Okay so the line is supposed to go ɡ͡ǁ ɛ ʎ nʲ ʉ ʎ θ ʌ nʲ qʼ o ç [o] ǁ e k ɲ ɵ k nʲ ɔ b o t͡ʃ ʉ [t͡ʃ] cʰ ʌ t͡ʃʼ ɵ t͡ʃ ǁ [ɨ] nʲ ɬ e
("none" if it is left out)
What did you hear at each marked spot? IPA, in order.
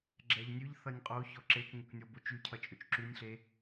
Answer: ɔ, none, ʉ

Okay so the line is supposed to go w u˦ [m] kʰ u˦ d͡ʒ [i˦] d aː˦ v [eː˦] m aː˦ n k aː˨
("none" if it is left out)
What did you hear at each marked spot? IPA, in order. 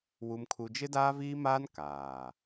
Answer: m, ɪ˦, iː˦

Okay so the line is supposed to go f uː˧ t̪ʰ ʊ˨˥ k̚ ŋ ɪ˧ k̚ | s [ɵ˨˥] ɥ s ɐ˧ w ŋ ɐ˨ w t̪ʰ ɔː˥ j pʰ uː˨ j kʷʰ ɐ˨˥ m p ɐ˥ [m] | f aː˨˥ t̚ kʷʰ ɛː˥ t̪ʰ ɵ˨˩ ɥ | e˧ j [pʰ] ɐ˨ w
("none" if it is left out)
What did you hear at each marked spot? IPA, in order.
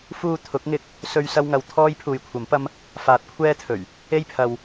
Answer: ɵ˧, m, pʰ

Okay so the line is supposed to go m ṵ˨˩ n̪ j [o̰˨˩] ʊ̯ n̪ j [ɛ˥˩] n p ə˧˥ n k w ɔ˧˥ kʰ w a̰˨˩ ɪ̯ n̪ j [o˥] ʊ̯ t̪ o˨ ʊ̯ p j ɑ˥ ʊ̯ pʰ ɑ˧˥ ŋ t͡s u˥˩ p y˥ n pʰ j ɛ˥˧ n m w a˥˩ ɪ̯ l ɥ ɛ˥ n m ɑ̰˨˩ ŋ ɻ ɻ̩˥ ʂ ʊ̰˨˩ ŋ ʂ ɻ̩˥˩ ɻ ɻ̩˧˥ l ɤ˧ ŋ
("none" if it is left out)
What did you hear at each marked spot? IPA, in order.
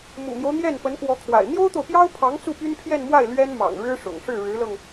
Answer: o˦, ɛ˥˩, o˥

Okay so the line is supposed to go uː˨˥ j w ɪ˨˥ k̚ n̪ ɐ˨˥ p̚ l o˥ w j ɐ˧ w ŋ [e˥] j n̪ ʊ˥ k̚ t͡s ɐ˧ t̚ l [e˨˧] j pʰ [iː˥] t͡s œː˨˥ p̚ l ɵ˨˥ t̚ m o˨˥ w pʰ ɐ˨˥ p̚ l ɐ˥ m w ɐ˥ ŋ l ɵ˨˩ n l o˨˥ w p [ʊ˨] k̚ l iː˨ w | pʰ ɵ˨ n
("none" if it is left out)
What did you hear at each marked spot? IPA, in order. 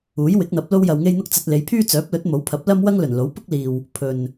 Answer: e˥, e˨˧, yː˥, ʊ˥

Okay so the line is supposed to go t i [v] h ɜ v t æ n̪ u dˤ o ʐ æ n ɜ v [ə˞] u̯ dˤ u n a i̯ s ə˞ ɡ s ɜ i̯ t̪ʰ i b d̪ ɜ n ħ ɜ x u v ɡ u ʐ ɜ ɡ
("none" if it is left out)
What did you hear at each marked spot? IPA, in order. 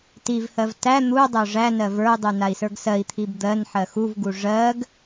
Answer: v, ə˞

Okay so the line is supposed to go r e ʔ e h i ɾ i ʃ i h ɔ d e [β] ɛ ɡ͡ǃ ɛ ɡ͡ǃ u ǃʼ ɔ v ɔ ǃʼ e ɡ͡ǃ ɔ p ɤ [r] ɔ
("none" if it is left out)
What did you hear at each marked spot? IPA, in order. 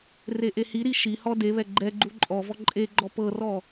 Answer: β, r

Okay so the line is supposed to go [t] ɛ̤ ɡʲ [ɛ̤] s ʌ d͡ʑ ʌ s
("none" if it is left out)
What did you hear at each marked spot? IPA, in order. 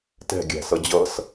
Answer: t, æ̤

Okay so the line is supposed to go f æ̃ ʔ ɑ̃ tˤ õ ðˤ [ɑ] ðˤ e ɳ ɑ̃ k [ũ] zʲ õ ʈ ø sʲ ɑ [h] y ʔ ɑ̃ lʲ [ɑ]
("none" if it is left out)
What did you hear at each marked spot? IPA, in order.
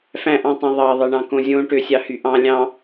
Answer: ɑ, õ, h, ɑ̃

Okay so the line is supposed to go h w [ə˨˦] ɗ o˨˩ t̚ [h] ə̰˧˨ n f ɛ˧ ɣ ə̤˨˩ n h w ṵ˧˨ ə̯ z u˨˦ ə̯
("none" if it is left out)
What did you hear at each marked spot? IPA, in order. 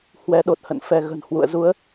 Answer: ɛ˨˦, h

